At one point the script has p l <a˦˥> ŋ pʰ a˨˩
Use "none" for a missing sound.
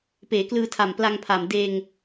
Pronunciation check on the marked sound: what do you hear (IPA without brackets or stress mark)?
a˧